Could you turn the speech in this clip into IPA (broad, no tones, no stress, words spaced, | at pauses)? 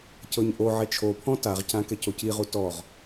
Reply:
cɤɲʔoʕɛ t͡ʃʰopʰɔ̃ taʁcã kɛcociʁu tɔʁ